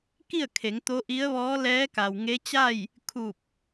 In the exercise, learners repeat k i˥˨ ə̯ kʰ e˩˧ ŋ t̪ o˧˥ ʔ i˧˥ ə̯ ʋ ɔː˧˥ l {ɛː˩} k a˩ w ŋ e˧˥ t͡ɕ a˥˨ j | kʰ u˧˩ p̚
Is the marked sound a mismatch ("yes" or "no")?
yes